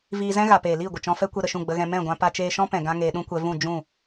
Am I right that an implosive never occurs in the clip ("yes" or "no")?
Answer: no